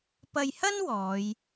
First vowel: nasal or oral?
oral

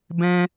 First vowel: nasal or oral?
nasal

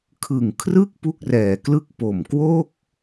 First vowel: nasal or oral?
oral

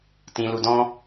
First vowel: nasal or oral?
nasal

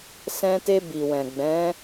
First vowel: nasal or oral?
nasal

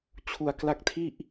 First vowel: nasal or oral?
oral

